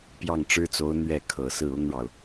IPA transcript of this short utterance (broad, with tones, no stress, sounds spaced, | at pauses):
p j ɑ˥˩ ŋ ʈ͡ʂ ɻ̩˥ t͡s o˧˥ ʊ̯ n̪ ɥ ɛ˥˩ kʰ ɤ˨˩ s ɹ̩˥˩ ʊ˥ ŋ ɻ ɑ˨ ʊ̯